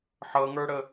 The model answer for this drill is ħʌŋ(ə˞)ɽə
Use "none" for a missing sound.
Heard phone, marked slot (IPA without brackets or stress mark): ə˞